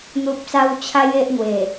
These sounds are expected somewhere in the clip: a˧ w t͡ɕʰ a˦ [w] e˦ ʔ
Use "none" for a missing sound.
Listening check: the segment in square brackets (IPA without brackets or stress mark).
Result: j